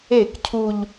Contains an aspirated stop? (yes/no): yes